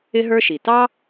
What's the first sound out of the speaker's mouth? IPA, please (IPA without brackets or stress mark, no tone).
ɪ